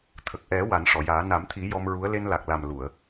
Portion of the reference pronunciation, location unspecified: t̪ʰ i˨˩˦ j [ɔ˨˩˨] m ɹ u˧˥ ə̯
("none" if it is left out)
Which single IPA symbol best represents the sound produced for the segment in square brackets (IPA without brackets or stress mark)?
ɔ˧